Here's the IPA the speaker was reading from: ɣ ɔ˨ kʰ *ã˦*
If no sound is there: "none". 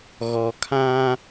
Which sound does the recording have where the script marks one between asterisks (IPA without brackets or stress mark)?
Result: ã˦